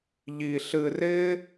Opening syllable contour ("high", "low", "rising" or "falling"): low